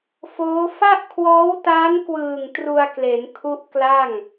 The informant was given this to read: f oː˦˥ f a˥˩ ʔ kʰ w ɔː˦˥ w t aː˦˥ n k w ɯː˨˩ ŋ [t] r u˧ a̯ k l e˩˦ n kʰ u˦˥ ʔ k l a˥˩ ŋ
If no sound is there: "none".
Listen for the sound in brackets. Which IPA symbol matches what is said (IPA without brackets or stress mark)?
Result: t